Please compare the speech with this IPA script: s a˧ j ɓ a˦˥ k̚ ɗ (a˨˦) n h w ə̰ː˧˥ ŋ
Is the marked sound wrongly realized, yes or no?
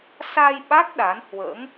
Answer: no